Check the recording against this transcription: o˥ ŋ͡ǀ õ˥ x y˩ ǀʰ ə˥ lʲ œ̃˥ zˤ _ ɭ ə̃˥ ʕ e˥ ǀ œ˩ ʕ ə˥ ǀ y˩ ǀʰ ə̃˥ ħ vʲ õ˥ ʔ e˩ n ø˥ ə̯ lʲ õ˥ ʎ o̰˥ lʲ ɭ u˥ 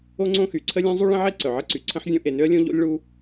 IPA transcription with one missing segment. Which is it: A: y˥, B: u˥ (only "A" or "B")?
B